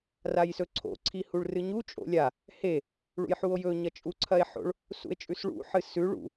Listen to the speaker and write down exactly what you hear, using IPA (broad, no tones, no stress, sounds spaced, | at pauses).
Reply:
r a j s ɵ ǀʰ o̰ ǀʰ i h u ɭ r ɨ ɲ u t͡ʃʼ o̰ lʲ a | h e | ɭ ṵ j ħ u o̯ j ɵ ɲ ɐ t͡ʃʼ u ǀʰ ɐ e̯ ħ o̰ ɭ | s ṵ e̯ t͡ʃʼ ʉ s ɭ ṵ ħ ɨ s ʉ ɭ ṵ